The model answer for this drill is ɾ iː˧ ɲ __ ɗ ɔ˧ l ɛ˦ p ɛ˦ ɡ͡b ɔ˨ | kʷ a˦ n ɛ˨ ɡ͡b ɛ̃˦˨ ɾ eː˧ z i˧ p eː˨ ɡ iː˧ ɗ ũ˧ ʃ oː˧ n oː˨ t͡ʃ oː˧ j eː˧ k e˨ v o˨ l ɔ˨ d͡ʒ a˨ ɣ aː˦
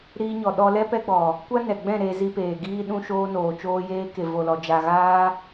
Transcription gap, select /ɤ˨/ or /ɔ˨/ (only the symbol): ɔ˨